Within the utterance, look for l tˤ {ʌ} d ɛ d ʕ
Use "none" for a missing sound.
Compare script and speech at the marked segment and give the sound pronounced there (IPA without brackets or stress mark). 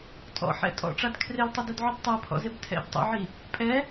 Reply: ʌ